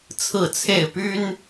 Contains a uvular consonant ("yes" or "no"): no